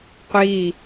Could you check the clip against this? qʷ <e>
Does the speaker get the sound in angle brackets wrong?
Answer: yes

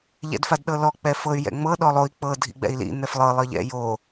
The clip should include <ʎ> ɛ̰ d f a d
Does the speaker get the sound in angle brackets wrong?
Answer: no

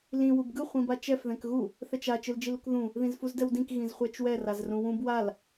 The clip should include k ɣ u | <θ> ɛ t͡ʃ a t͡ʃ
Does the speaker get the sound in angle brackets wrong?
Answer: no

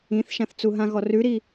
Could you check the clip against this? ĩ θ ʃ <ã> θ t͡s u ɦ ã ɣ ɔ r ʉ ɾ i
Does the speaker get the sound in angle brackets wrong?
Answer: no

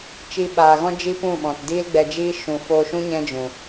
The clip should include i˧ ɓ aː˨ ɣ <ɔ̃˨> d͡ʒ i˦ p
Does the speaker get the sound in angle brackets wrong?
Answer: yes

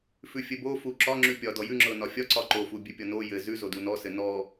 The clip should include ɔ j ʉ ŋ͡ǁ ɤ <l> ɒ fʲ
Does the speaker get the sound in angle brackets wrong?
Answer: yes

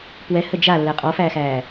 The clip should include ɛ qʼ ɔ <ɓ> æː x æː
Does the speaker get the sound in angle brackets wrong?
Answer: yes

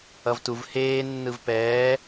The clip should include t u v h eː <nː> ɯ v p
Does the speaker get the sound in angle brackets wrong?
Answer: no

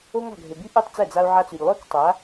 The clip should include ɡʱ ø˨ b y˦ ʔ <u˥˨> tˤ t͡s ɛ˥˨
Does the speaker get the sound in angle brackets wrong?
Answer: no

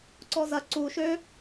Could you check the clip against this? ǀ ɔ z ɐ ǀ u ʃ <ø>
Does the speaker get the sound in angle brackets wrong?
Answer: no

